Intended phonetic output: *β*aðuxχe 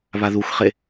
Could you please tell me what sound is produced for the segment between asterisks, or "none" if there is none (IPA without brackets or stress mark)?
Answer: β